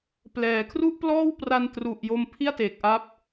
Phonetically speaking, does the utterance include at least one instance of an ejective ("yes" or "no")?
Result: no